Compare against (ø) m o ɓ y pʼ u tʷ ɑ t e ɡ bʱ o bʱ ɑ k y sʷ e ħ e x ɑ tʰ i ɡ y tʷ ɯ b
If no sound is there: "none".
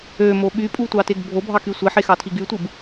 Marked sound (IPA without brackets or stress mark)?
ø